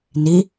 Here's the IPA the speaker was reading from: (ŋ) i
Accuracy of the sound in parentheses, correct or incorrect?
incorrect